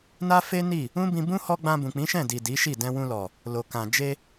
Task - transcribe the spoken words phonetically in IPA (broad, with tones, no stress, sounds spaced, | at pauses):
n a˦ f e˦ n i˦˨ | ũ˦ b ĩ˧ b ũ˦ h ɔ˧ ɡ͡b ã˧ b ũ˨ k͡p ĩ˨˦ ʃ ɛ̃˦˨ d i˨ d i˨˦ ʃ i˦˨ d ɛ̃˧ w ũ˧ l ɔ˨ | l o˨ k ã˨ d͡ʒ e˧